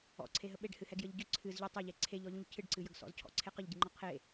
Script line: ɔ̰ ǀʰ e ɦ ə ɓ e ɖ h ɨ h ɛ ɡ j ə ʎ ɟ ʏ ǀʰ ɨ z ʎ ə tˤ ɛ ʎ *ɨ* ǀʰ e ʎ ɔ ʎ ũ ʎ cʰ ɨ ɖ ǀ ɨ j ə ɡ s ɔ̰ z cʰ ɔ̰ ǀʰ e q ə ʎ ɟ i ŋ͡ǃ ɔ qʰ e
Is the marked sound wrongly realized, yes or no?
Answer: yes